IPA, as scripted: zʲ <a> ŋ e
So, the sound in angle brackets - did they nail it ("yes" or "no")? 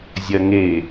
no